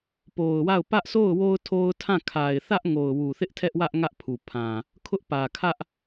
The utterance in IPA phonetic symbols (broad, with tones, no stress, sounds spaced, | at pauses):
p o˨ ʊ̯ w a˦˨ ʊ̯ p ä˦ ʔ s o˦˨ ʊ̯ w o˦ ʊ̯ tʰ o˦ ʊ̯ tʰ ã˦˨ kʰ a˨ ɪ̯ θ ä˦ ʔ ŋ o˨ ʊ̯ w u˨ θ ɪ˦ ʔ tʰ ɛ˦ ʔ w ä˦ ʔ ŋ ä˦ ʔ pʰ u˨ pʰ ã˨ | kʰ ʊ˦ ʔ p ä˨ kʰ ä˦ ʔ